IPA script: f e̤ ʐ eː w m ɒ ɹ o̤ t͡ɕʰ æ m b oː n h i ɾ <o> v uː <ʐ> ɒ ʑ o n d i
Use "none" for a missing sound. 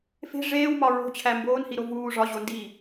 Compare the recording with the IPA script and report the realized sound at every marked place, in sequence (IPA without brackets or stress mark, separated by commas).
o, ʐ